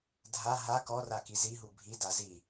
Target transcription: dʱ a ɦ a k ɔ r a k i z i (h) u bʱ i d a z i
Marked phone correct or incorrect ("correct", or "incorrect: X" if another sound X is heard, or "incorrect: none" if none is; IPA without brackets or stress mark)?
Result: incorrect: ɦ